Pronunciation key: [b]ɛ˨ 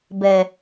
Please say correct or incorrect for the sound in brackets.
correct